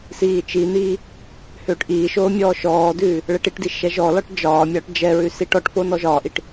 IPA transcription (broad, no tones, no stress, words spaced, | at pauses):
siːt͡ʃiniː | høːʈʔiːʃoː mʲɔːʃɔːdʉː | ɭɛʈiʈdi ʃɛʒɔlɒʈ d͡ʒɒːmʲɒːʈ d͡ʒɛɹʉ siʈɔʈfo nɔʒɒːʔiʈ